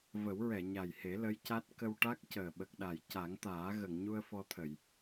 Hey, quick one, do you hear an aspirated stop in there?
yes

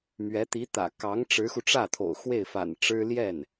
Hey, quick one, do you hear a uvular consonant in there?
no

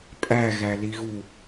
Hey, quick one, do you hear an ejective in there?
yes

